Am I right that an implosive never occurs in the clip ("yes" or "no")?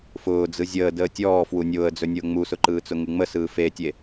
yes